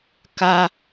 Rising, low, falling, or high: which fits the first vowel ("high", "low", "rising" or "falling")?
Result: high